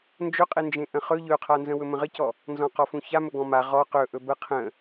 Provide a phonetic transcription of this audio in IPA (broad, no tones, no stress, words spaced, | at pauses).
nd͡ʒɵqʼend͡ʒẽ ʔə̃χɵ ʎɵqʰanzə̃ wɵmə̃ʁəcɔ | nzɔ̃qɔfũça mɵɡɔ̃ma ʁɔ qɵʔɵ bə qʰə̃